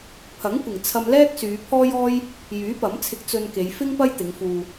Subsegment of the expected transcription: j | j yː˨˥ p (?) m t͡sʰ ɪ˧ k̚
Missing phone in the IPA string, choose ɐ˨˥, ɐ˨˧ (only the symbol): ɐ˨˥